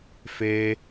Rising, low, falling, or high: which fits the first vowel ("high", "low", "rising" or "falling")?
high